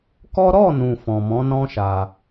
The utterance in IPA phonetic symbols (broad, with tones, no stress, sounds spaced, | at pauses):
k ɔ˦ ɾ ɔ˦˨ n ũ˨ f ɔ̃˨ m ɔ̃˨˦ n ɔ̃˦ ʃ a˧